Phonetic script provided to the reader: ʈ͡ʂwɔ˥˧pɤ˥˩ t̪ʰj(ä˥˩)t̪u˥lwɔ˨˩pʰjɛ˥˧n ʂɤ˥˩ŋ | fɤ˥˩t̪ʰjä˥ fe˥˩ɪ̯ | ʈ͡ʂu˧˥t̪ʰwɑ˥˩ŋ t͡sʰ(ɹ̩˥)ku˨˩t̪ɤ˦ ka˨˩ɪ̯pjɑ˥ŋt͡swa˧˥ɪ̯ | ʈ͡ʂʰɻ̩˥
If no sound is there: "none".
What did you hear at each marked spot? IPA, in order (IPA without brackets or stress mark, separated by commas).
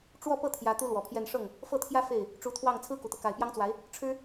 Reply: ä˧˥, ɹ̩˥